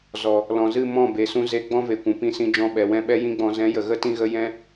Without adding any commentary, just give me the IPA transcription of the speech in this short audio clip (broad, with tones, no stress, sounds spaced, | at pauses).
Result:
z ɔ˨ | l ɔ̃˨ z ɨ˦˨ m ɔ̃˦˨ b e˨ s ũ˧ z e˧ ɡ͡b ɔ̃˦ v e˨ kʷ ũ˨ p ĩ˧ s ĩ˧ d͡ʒ ɔ̃˧ ɓ ɛ˨ w ɛ̃˦ ɓ ɛ˦ j ĩ˦ ɡ͡b ɔ̃˧ z ɛ̃˨˦ j ə˨ ɣ ə˦ t ĩ˦ ɣ ə˦ j ɛ̃˦